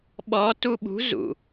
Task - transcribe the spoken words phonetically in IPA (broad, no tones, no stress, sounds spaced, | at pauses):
ɓ ɔ t u ɓ ṳ z ṵ